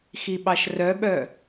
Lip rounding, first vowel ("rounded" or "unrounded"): unrounded